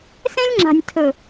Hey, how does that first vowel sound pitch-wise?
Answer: high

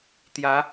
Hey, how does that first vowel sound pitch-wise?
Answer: rising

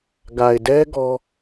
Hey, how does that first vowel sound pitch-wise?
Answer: low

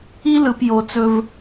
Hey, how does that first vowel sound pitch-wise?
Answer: high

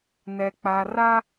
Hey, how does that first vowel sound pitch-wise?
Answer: low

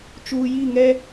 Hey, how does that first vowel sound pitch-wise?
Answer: low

